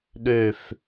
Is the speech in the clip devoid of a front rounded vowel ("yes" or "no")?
no